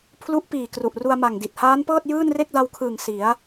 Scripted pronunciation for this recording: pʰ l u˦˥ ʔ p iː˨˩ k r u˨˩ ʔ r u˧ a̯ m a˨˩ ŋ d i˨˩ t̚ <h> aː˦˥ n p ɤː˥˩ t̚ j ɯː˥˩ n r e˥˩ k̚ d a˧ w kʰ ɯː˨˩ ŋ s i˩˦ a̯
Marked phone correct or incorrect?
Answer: correct